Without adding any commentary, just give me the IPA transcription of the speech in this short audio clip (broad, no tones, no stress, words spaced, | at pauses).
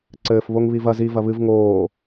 ǀɘːf βoŋβivɐ zi vɐβɨv ŋoː